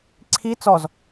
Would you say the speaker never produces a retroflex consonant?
yes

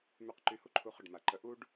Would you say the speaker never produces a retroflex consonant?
no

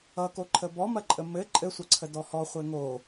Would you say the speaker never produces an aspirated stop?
no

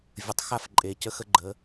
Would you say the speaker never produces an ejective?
no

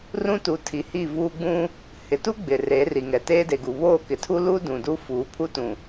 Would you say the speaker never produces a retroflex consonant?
yes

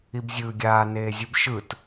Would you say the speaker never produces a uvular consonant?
yes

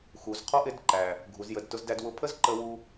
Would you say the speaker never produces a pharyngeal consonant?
yes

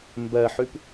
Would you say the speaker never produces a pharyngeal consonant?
no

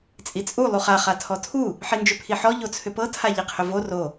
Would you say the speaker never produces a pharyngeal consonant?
no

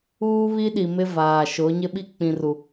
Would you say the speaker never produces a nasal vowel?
no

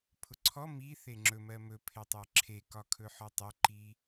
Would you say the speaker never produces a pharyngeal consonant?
no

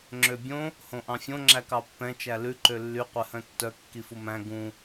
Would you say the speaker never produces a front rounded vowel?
no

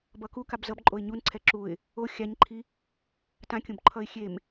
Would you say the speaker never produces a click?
no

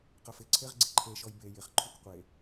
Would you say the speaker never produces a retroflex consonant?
yes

